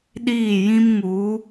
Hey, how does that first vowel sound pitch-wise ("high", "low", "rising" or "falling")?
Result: falling